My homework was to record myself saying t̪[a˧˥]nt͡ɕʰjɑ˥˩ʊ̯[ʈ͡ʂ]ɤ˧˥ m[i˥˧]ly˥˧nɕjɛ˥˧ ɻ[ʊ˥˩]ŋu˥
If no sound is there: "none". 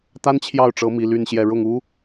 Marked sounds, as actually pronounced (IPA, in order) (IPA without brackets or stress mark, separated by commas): a˥, ʈ͡ʂ, i˧˥, ʊ˥˩